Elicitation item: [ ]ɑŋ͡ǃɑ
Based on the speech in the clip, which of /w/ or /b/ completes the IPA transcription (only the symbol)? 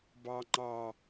b